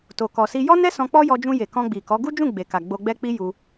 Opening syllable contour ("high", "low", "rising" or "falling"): low